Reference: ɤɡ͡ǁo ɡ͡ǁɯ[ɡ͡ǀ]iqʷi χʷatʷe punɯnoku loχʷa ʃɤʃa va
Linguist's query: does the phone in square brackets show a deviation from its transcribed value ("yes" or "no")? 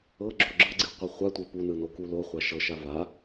no